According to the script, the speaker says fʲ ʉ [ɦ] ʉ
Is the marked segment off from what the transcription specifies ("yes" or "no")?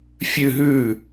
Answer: no